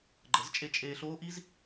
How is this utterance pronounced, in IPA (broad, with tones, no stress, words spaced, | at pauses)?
ɡ͡ǃə˨˦zt͡ʃʼe˧t͡ʃʼeː˧ ɬoː˦ ʔi˦z